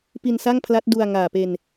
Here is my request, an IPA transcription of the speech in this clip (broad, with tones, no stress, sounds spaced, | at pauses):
p i˧ n s a˥˩ ŋ pʰ l a˦˥ t̚ d u˧ a̯ ŋ aː˨˩ p e˧ n